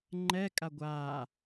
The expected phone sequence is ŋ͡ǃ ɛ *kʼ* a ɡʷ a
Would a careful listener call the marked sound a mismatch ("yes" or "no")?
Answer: no